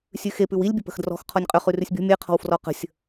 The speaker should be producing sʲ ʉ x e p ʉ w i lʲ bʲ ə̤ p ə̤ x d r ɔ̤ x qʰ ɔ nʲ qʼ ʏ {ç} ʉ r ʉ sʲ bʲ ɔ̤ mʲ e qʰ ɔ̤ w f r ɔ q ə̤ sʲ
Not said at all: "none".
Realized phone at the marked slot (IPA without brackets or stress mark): χ